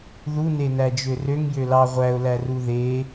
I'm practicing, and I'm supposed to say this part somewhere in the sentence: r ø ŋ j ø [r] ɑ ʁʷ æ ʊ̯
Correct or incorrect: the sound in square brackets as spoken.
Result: incorrect: l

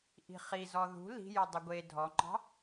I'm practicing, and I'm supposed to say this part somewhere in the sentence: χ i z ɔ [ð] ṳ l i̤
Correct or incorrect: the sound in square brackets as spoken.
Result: correct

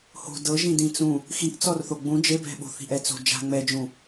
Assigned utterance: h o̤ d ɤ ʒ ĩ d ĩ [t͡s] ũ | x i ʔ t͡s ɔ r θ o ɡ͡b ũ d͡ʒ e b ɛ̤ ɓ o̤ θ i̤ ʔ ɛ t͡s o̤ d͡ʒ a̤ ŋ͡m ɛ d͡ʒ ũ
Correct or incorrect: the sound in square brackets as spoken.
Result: correct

